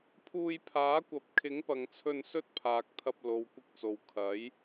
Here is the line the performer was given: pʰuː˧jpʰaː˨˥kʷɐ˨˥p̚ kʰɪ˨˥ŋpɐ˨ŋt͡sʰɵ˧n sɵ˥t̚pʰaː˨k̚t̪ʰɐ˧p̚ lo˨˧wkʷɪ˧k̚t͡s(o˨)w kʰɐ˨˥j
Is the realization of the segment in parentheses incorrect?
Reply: no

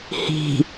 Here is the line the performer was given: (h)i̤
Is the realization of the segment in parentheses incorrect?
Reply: no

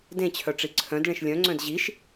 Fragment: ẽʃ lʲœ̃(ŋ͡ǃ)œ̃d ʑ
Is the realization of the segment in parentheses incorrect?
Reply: yes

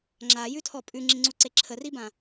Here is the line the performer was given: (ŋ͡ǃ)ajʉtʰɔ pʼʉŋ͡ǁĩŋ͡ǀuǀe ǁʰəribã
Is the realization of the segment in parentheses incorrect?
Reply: yes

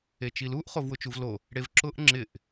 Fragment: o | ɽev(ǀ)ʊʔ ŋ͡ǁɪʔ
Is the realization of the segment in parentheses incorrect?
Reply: yes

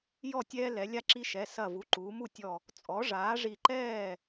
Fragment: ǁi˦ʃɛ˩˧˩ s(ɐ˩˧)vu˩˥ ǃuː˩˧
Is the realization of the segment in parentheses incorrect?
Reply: yes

